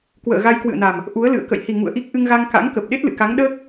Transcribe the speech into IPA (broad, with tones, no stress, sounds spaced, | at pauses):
k w ə̰ː˧˨ ɣ a˧ j k w ɨ̰˧˨ ə̯ n a˨˩ m | ʔ u˨˦ ə̯ l ɨ̰˧˨ ə̯ k ə̰˧˨ j h i˨˩ ŋ ṵ˧˨ ə̯ ʔ i˦˥ k̚ ʔ ɨ˧ ŋ ɣ a˧ ŋ k a̰˧˥ ŋ k ə˨˩ p̚ ɗ e˦˥ t̚ l ɨ̰˧˨ k a˨˦ ŋ ɗ əː˦˥ k̚